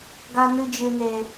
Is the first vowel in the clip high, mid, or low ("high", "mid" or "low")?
low